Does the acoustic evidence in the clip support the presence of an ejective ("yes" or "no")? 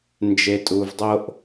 yes